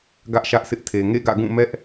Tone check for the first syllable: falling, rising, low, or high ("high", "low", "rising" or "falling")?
high